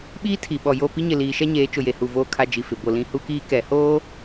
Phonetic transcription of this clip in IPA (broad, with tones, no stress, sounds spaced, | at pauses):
ɓ iː˦ tʰ i˨ ɓ ɔ˨ j o˦˨ p i˦ ɲ ɪ˨ l iː˨ ʃ ɛ˦ ɲ eː˨˦ t͡ʃ ʊ˨ j e˨ h u˨ v oː˦ kʰ a˦ d͡ʒ i˨ f ɪ˨ b o˨ l ĩ˦ h u˦ k iː˦ k ɛ˨ h oː˦